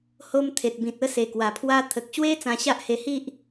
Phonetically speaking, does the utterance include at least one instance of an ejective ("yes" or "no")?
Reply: no